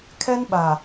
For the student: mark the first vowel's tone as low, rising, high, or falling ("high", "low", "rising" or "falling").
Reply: high